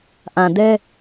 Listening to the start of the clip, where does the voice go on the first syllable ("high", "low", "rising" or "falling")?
low